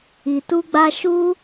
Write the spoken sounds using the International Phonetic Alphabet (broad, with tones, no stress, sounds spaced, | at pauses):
i˧ t u˦ ɡ͡b a˦ ʃ u˦